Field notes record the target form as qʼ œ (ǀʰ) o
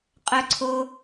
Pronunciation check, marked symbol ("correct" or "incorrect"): correct